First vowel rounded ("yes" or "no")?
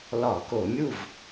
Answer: yes